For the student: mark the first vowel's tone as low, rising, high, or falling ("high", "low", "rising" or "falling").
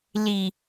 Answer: low